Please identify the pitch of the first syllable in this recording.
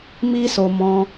high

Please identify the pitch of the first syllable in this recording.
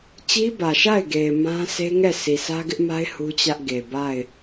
high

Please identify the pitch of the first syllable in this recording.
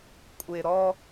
low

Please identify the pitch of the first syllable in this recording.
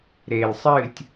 low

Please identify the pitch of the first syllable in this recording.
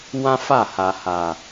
high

